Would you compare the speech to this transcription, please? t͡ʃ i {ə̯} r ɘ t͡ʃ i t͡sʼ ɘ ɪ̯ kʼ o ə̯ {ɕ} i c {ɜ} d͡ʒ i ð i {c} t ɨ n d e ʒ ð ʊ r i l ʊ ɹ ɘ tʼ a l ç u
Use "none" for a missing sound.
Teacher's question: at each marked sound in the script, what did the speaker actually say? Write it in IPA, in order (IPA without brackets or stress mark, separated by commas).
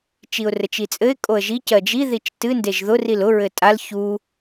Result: ʊ̯, ʒ, ɜ, t͡ʃ